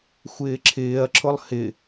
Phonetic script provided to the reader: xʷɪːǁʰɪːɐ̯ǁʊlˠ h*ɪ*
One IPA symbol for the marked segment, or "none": ɪ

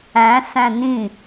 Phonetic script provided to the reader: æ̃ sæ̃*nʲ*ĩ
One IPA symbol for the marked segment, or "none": n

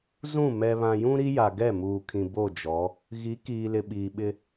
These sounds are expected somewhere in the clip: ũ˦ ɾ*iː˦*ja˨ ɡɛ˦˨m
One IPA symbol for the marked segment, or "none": i˦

